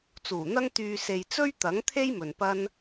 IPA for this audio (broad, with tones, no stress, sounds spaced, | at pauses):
t͡s uː˨˩ n̪ ɐ˥ ŋ t̪ yː˧ s e˨ j t͡s ɵ˥ ɥ t̪ ɐ˨˥ ŋ t̪ʰ e˥ j m ɵ˨ n p ɐ˥ n